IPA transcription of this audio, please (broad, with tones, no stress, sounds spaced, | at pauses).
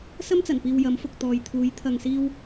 s ɐ˥ m t͡s ɐ˨˩ n p iː˨ w j ɐ˨˥ m f ʊ˨ k̚ t̪ ɔː˨ j t̪ʰ uː˨˥ j t̪ʰ ɐ˨ ŋ s iː˧ w